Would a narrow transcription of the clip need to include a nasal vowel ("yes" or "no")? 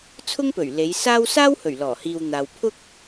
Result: no